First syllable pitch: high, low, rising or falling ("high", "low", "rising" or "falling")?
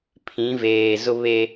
rising